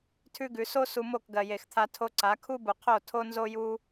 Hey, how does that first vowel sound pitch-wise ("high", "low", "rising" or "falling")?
high